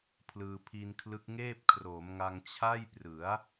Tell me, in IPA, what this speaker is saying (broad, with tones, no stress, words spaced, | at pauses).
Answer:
pʰlɯː˧pʰi˧nkʰlɯ˦˥k̚ŋeː˥˩p̚ kʰroː˩˦mŋa˧ŋ t͡ɕʰa˥˩jprɯ˩˦a̯